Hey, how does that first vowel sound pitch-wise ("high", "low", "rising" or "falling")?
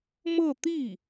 falling